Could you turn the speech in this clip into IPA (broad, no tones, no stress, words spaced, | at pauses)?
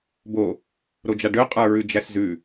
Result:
bo | ɾod͡ʒaɖø qʼə˞ɹʉd͡ʒæszʉ